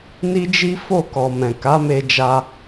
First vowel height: high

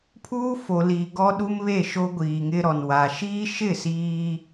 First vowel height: high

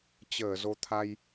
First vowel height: mid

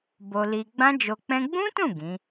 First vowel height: mid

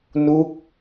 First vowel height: high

